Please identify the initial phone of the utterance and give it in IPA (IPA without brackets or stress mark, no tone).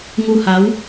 ŋ